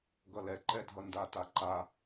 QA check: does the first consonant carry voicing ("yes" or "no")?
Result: yes